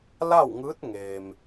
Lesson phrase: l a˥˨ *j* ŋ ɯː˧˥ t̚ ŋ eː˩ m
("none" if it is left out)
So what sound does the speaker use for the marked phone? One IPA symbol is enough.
w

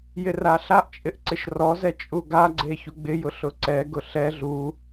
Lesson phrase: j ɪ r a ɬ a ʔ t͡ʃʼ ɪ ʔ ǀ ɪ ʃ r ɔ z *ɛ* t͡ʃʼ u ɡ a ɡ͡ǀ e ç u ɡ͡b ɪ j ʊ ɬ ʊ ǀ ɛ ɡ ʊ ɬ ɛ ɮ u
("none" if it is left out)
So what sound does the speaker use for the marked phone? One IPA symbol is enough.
ɛ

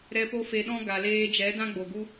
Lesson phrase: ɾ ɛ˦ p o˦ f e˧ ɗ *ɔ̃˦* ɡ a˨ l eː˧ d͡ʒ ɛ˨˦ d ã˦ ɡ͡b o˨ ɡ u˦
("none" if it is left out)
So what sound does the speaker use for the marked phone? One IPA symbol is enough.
ɔ̃˦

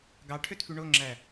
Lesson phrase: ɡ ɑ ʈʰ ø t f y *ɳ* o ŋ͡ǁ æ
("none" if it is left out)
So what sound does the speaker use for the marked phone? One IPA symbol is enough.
ɳ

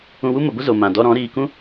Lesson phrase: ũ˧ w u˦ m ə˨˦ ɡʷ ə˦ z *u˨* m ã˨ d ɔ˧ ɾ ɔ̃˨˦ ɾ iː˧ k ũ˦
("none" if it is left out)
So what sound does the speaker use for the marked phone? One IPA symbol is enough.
o˨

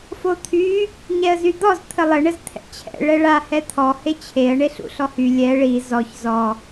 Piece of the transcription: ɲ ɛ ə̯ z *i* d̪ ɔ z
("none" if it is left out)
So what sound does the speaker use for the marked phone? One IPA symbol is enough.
y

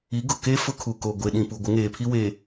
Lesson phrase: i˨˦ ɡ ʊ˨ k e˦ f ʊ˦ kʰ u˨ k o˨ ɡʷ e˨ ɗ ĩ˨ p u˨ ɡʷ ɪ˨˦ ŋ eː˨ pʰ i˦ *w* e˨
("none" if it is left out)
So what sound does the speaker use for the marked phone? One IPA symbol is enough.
w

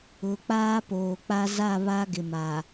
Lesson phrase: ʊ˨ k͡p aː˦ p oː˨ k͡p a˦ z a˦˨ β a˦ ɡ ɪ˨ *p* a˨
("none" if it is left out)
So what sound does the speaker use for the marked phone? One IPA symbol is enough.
m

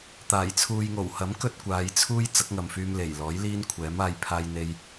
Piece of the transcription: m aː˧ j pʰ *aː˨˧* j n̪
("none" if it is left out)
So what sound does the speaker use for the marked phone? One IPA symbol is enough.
aː˥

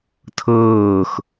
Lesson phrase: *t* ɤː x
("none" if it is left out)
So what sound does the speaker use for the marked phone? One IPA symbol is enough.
tʰ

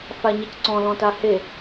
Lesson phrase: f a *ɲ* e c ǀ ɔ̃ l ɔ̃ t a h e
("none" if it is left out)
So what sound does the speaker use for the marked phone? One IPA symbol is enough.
ɲ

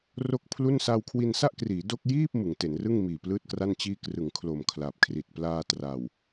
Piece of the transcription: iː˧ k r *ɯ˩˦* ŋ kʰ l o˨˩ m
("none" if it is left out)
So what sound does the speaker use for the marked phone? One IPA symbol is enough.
ɯ˩˦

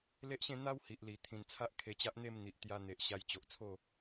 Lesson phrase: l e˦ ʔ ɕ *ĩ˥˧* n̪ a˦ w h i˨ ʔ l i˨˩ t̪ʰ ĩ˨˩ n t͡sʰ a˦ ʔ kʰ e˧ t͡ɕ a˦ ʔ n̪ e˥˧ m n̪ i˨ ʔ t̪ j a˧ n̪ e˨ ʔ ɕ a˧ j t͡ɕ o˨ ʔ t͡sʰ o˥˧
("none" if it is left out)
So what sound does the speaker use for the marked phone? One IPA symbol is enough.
ẽ˥˧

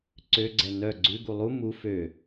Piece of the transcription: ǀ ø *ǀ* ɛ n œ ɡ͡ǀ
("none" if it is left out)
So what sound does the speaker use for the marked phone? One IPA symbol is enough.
ɡ͡ǀ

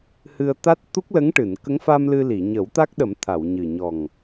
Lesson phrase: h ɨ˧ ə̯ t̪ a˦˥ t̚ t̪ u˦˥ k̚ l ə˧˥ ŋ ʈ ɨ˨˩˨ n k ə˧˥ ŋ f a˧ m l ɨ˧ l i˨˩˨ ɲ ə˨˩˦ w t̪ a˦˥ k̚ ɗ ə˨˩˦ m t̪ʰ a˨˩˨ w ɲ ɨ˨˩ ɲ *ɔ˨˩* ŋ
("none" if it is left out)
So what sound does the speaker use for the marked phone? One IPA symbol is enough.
ɔ˨˩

